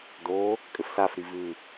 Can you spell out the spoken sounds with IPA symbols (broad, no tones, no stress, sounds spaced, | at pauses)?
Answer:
d o | kʼ ɘ f s a f ɾ i v ʉ